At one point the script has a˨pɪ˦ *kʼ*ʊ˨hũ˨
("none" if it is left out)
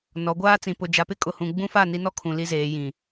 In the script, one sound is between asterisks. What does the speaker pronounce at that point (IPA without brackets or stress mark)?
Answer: kʼ